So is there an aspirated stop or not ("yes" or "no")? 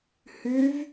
no